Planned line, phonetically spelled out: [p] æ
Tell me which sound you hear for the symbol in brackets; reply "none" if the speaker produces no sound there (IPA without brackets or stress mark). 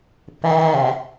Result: p